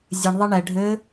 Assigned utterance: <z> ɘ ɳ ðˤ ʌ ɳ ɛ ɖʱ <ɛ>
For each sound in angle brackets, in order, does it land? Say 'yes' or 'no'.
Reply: no, no

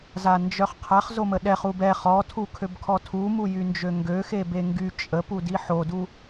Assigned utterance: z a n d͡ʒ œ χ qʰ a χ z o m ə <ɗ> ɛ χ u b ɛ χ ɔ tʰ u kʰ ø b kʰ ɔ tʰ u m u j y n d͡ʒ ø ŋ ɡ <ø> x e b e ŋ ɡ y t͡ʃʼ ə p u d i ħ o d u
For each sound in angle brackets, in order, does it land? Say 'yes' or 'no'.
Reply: yes, yes

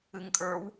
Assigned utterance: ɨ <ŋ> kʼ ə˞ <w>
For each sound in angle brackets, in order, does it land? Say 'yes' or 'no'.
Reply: yes, yes

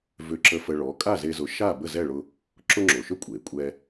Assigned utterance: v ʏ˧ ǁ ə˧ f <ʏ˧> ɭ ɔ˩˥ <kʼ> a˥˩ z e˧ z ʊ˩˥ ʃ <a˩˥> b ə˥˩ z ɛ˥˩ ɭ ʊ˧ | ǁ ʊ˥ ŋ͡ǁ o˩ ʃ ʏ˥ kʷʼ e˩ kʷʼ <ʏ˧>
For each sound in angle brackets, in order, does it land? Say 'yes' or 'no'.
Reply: no, yes, no, no

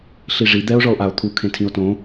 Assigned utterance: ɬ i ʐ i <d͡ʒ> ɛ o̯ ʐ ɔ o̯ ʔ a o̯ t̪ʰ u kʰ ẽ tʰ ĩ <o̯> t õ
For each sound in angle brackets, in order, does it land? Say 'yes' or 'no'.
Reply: no, yes

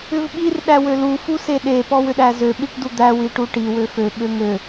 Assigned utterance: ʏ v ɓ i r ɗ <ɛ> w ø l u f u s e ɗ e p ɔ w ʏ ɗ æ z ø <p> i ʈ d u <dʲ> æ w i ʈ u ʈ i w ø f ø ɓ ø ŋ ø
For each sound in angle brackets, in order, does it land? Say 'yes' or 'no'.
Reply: no, no, no

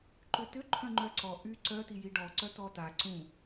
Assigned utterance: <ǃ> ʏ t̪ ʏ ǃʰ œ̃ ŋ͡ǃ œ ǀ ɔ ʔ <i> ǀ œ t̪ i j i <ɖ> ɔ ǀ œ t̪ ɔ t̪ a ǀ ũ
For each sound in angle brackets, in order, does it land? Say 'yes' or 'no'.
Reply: yes, no, yes

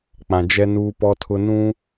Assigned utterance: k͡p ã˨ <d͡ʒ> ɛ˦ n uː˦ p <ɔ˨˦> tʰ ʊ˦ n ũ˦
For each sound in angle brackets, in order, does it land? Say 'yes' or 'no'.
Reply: yes, no

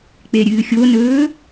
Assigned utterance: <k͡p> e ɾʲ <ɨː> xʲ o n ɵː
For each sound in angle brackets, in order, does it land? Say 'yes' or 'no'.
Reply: yes, yes

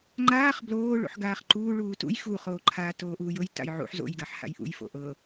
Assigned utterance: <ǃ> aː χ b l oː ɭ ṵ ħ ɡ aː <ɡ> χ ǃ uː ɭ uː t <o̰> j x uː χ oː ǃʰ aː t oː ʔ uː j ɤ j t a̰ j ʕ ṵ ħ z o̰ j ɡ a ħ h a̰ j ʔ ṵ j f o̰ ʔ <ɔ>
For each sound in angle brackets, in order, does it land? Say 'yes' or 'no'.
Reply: no, no, no, no

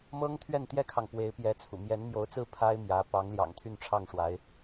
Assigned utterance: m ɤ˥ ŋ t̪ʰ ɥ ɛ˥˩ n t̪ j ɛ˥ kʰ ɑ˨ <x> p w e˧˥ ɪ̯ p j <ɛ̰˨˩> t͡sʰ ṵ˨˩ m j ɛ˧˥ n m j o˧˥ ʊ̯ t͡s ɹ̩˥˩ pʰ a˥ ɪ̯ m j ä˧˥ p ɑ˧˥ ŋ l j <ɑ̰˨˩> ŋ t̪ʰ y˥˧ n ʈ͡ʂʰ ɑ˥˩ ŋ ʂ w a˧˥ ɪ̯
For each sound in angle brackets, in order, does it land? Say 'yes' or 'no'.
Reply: no, no, yes

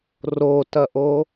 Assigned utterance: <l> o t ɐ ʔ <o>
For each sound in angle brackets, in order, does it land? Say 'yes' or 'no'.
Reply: no, yes

